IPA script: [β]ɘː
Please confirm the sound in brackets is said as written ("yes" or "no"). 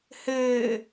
no